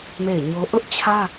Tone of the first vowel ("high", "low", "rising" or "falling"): falling